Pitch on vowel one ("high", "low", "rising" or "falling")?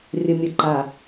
low